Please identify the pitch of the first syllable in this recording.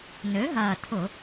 rising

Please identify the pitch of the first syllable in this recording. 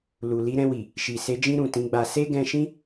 low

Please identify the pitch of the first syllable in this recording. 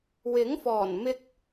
rising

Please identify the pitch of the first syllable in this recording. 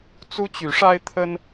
high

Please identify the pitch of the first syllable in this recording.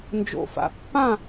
low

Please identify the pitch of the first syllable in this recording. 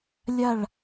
falling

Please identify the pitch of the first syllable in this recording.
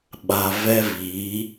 low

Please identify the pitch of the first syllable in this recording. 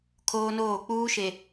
high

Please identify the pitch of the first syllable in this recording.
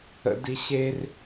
high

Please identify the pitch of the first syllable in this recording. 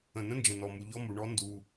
low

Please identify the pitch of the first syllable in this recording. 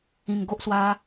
low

